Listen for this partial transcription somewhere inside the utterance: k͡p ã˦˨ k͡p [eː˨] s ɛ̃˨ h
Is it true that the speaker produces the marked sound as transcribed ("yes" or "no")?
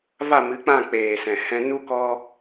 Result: yes